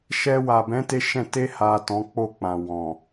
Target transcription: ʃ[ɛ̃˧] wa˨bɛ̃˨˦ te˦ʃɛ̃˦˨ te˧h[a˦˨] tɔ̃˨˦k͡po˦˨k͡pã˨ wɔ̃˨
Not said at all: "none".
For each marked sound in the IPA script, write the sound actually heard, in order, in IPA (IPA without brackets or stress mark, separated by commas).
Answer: ɛ˧, a˨